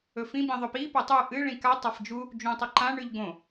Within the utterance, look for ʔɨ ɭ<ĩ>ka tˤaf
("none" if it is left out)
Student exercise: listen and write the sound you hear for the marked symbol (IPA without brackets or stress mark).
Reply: ĩ